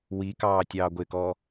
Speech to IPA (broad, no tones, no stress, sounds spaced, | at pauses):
w i k ɑː tʲ ɑː ɡʷ ɪ k ɔː